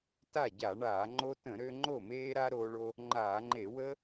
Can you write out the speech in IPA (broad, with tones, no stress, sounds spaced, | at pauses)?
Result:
t a˥˩ ɟ a˧˩˧ ɳ aː˧˩˧ ŋ͡ǃ o˦ t ə̃˧˩˧ ɾ ø˦ ŋ͡ǃ o˥˩ m eː˦ ɾ a˦ ɾ oː˦ ɭ o˦ | ŋ͡ǃ aː˧˩˧ ŋ͡ǃ e˧˩˧ w əː˦